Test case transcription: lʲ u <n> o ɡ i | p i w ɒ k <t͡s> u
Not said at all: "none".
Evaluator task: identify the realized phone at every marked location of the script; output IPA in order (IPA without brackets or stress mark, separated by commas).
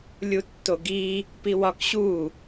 tː, ɕ